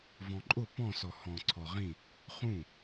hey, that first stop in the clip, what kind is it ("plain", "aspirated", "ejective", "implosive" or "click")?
click